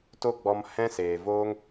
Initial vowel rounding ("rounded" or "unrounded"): rounded